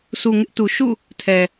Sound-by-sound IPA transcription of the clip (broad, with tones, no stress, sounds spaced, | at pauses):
sʰ u˨ ŋ ɪ˦ ʔ t u˨ ʃ ṵ˦˨ | tʰ ɛ˨